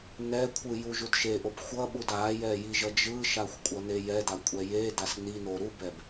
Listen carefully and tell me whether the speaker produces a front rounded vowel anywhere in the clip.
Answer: no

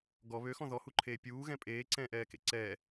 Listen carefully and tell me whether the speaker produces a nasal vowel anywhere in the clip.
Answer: yes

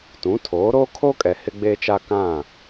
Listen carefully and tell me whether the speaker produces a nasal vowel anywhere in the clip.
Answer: yes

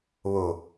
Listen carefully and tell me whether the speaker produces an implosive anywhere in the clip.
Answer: no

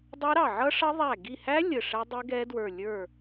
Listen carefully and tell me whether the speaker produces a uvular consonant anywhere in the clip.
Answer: no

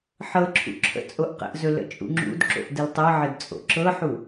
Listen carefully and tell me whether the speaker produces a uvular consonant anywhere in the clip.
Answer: yes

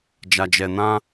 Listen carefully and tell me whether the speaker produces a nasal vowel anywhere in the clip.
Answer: yes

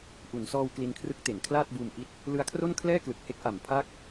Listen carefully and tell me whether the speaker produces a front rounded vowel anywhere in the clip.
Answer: no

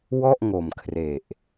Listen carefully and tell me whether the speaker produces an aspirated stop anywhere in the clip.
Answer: yes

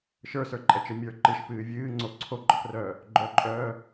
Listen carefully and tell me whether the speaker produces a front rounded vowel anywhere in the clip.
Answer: yes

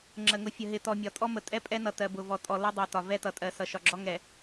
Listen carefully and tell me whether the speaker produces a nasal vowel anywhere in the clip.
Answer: no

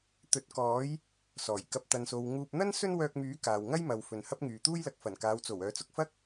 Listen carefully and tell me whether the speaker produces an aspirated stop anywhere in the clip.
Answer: no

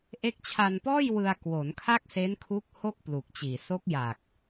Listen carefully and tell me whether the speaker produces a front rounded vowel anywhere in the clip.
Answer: no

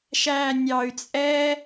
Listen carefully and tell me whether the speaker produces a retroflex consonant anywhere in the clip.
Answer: no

